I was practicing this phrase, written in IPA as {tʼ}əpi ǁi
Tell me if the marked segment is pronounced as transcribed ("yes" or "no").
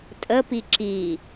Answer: yes